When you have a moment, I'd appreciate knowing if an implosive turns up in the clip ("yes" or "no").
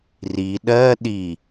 yes